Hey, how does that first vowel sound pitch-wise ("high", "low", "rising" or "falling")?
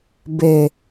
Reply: low